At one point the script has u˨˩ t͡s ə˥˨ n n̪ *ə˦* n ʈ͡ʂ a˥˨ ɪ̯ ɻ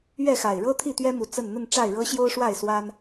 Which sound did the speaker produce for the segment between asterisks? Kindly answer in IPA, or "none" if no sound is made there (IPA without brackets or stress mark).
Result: ə˥˨